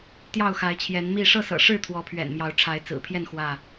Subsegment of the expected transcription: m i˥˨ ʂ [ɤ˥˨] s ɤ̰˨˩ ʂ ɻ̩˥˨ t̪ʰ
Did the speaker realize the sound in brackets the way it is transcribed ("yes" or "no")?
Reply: yes